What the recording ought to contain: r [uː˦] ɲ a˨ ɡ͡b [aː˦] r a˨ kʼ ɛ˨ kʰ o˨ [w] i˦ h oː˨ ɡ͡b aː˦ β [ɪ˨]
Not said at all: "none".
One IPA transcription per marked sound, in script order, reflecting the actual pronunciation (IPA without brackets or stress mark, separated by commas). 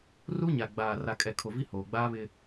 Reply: u˦, aː˨, v, ɪ˦